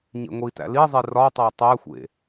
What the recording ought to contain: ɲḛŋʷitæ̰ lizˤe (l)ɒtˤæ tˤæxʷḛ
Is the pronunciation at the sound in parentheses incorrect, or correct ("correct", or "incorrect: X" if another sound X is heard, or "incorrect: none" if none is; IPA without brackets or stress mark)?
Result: incorrect: r